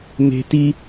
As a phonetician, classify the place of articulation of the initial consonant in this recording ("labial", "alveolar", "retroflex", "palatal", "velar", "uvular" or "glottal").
labial